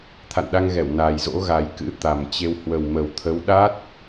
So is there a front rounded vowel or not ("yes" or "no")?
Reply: no